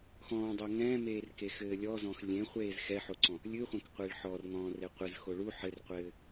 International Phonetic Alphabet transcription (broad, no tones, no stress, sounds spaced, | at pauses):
x ɔ̃ː dˤ o ŋ ɛ̃ː m eː r k e x ɘː lʲ ɔ z ɔ̃ x lʲ ẽ χʷ eː z x ɛ ħ o ǀ ɔ̃ | lʲ ɨ χʷ ɛ̃ k qʷ e ɭ ħ ɔ r ŋ ɔ̃ː r e qʷ ɨ z x o ɭ u ħ ɘ r qʷ ɘː